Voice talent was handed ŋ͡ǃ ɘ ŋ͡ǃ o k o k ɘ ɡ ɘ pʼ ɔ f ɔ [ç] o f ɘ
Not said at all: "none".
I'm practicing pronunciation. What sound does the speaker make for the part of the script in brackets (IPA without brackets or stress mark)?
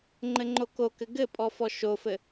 ʃ